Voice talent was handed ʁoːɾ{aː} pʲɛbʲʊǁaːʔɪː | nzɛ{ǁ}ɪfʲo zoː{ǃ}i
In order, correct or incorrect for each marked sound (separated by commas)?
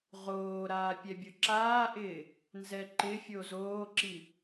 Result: correct, incorrect, incorrect